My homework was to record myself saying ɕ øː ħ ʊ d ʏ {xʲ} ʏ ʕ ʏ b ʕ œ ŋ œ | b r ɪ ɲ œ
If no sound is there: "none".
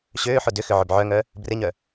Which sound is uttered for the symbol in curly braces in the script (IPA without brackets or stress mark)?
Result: x